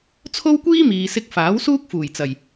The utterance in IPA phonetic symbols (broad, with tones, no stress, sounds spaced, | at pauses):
t͡sʰ o˥ w kʷ iː˥ m iː˨ s ɪ˧ k̚ f aː˨˥ w s uː˥ k̚ f uː˨˩ j t͡s ɐ˨˩ j